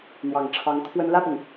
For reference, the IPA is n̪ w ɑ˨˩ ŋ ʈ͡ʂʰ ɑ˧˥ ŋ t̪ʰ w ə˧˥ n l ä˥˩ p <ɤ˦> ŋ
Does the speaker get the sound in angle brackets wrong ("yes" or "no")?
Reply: yes